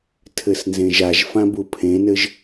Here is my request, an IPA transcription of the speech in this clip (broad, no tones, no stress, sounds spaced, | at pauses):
tʰ ɘ s n z ẽ ʒ a ʒ f ã b u pʰ ẽ n ɘ ʒ